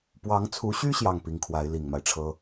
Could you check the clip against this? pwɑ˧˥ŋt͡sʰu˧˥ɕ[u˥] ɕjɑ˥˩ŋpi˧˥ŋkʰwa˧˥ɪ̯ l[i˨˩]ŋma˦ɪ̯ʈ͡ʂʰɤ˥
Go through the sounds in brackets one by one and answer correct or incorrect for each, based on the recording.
incorrect, correct

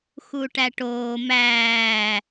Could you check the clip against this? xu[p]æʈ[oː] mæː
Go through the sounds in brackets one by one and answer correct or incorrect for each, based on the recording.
incorrect, correct

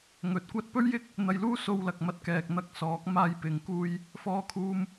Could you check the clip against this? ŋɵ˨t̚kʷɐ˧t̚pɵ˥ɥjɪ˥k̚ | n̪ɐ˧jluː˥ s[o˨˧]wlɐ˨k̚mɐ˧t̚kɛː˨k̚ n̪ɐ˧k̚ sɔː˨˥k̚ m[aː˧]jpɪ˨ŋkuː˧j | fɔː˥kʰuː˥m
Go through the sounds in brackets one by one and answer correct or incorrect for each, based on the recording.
incorrect, correct

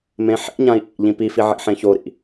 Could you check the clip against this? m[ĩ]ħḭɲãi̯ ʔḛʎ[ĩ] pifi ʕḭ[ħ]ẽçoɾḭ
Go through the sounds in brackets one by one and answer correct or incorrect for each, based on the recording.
incorrect, correct, correct

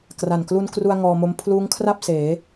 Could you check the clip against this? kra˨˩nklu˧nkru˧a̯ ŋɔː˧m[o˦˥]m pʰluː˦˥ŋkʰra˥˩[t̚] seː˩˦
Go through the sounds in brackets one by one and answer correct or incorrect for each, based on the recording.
correct, incorrect

